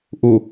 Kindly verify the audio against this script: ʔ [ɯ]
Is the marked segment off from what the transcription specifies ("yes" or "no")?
yes